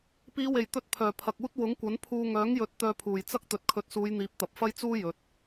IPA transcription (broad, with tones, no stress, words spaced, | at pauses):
piː˨˧we˨˩jt̪ɵ˧t̚ pʰœː˨˩pʰɐ˨k̚uː˥t̚ wʊ˨˥ŋkʷɐ˨˥npʰuː˧ ŋœː˨˥ŋjɵ˨˥t̚ t̪œː˧pʰuː˨˩jt͡sɐ˥k̚ t̪ɵ˨t̚kʰɵ˨˥t̚suː˨˧jn̪iː˨˥p̚ t̪ɐ˨p̚fɐ˥jt͡suː˥jɵ˨t̚